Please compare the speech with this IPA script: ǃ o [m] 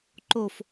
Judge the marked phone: incorrect: f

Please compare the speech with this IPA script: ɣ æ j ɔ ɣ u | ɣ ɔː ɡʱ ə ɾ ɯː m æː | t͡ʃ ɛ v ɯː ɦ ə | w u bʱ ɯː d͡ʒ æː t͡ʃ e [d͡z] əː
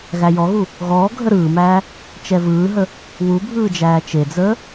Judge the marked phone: correct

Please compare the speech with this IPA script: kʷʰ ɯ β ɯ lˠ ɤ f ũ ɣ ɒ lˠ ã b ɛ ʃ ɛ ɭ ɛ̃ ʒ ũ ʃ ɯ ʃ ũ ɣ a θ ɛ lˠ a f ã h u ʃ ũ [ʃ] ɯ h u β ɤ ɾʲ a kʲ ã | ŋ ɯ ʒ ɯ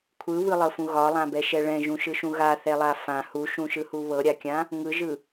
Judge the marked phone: correct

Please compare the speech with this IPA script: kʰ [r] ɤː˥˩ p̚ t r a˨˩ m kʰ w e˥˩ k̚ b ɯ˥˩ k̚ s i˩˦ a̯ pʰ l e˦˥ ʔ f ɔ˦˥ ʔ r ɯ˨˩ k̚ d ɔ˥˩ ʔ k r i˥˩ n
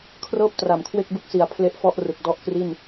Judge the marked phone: correct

